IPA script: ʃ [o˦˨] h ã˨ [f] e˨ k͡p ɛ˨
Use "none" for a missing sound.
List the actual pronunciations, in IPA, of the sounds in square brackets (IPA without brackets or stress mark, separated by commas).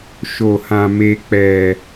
o˨, m